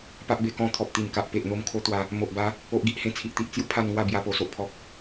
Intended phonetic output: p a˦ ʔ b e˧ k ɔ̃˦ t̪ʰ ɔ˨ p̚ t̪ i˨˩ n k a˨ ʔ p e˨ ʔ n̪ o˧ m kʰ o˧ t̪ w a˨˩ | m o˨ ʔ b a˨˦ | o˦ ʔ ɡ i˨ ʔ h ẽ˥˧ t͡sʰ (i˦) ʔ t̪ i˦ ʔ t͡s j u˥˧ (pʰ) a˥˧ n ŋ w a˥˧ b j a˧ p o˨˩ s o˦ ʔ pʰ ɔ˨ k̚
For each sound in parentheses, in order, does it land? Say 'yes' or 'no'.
yes, yes

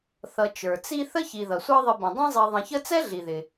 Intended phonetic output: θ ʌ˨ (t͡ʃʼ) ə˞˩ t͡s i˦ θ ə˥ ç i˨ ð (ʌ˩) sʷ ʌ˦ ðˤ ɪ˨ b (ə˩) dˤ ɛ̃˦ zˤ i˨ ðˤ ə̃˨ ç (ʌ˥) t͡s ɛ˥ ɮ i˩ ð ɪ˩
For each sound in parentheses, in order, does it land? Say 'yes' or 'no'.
no, yes, no, no

